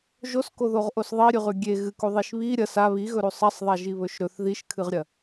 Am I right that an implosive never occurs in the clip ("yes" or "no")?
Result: yes